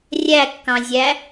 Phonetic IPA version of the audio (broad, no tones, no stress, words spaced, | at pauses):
rʲækːɑ̃zʲæ